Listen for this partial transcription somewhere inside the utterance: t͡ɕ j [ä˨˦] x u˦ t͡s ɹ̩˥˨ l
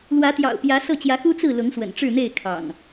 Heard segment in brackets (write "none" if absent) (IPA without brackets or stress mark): ä˨˦